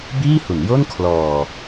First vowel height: high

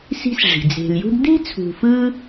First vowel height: high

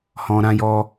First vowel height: mid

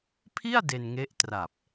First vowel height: high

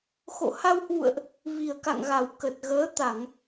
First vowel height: mid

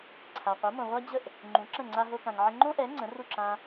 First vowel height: low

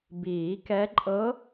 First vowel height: high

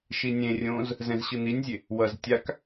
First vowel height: high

